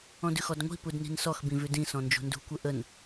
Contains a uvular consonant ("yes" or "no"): no